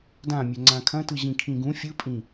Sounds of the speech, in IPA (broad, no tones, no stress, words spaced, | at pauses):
dãmʲɵ ŋ͡ǀãkʰɐ̃tɯ ʑĩkʰĩɡũ fʲɯpʼĩ